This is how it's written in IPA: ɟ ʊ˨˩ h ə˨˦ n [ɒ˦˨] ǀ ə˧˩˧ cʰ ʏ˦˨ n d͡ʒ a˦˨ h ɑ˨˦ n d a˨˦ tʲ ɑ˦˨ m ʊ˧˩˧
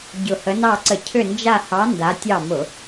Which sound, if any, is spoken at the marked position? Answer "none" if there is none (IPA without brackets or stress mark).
ɑ˦˨